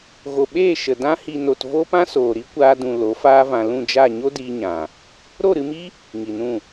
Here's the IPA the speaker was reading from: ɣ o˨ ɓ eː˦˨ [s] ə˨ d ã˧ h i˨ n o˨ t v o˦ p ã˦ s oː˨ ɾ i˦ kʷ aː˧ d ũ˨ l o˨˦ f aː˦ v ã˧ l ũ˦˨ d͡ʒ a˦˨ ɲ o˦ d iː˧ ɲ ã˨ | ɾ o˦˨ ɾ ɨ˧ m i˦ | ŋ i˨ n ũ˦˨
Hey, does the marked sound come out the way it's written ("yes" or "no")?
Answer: no